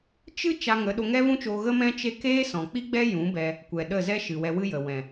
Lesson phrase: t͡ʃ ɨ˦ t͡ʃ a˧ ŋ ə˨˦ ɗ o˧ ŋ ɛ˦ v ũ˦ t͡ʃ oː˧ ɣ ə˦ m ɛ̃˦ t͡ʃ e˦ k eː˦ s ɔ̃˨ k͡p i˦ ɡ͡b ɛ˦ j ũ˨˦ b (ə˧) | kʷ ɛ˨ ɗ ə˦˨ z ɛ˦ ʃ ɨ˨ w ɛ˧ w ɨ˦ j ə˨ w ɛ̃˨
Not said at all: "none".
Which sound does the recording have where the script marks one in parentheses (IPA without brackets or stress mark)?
ɛ˧